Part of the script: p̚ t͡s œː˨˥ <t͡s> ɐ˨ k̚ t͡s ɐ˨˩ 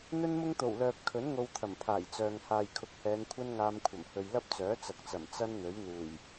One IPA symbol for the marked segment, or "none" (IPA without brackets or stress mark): t͡s